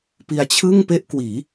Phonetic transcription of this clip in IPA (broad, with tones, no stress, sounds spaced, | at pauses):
p i˧ a̯ t͡ɕʰ ɯ˥˩ ŋ p e˥˩ ʔ k w iː˩˦